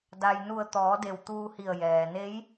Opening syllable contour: low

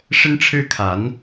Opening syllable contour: high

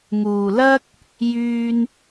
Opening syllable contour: low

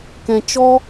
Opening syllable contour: low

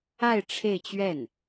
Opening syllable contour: falling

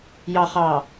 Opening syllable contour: low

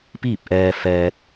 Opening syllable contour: falling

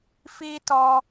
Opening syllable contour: high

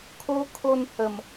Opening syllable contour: high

